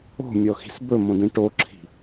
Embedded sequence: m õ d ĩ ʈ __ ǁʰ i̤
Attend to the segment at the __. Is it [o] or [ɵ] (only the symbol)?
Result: o